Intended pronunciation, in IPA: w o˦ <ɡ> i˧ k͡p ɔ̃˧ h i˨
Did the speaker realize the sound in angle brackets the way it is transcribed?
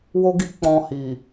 yes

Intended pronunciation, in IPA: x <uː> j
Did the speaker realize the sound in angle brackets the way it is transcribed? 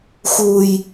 yes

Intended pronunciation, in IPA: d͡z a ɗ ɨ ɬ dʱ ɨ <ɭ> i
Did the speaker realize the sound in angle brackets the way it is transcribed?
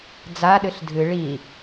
yes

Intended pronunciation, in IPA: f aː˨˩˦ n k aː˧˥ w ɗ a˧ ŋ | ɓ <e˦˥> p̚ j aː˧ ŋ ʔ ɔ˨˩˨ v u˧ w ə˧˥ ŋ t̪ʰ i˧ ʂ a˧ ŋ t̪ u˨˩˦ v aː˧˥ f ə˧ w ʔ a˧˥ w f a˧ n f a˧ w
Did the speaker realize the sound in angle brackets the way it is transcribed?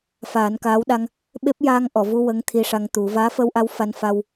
yes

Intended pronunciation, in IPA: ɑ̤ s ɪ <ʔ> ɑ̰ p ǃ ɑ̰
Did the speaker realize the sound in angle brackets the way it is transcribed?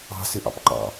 yes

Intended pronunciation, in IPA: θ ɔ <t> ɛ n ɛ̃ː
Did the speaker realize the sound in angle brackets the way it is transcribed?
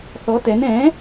yes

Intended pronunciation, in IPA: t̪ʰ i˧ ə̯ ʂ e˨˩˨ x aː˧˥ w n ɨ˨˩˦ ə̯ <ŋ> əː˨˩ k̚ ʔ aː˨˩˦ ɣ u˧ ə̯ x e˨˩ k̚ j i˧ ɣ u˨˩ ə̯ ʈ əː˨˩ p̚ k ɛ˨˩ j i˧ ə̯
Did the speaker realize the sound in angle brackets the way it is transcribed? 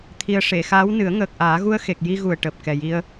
yes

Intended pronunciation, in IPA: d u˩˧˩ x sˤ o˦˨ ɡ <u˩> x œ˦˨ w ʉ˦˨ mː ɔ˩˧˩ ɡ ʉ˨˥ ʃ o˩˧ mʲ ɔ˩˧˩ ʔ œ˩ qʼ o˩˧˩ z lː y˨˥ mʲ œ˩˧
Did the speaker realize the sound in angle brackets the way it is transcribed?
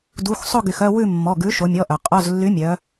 no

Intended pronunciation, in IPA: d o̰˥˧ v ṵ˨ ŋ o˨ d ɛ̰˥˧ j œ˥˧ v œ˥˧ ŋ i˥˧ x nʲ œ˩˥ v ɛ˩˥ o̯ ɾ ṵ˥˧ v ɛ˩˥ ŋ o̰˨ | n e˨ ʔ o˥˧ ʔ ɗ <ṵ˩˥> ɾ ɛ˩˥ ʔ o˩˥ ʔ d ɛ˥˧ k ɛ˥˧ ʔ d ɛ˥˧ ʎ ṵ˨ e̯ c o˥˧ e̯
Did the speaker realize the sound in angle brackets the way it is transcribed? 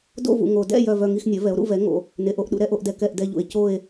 yes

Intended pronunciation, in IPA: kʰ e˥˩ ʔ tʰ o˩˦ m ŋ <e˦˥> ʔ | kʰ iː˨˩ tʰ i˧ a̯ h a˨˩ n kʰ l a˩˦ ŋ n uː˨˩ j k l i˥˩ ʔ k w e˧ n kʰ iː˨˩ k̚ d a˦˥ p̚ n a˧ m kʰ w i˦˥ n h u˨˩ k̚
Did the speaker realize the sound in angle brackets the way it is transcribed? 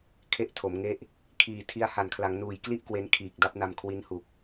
yes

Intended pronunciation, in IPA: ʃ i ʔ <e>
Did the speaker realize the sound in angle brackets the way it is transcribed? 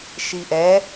no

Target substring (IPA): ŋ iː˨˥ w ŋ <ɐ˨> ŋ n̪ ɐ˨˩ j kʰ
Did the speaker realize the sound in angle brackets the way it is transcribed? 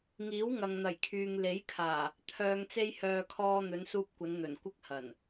yes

